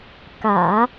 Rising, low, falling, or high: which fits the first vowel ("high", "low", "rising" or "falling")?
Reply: low